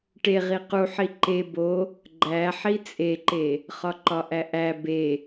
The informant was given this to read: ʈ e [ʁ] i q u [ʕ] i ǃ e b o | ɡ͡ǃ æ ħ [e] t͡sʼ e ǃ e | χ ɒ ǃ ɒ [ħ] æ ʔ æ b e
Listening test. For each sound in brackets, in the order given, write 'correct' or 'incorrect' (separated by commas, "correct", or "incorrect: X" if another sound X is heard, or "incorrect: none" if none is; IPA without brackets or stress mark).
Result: correct, incorrect: ħ, incorrect: i, incorrect: ʔ